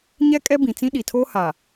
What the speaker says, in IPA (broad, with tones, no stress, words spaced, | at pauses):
ɲɛ˦kʼɛ˦bĩ˨ t͡sĩ˦ ɗi˨tʰoː˦ ha˨